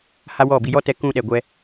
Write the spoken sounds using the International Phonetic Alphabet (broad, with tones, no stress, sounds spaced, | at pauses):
h a˦ w ɔ˦˨ b i˧ j ɔ˦ t ɛ˧ k ũ˧ ɗ ɛ˧ ɡʷ ɛ˦